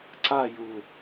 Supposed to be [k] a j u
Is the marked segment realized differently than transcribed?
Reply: yes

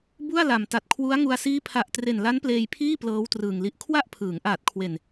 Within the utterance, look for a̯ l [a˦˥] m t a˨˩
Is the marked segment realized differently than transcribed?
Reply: yes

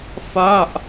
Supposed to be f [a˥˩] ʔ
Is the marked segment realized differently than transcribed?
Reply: no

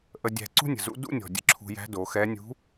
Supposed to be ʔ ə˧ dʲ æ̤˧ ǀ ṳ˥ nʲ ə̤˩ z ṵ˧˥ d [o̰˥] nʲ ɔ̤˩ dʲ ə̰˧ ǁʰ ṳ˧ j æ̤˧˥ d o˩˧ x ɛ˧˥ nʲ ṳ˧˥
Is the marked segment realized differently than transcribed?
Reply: yes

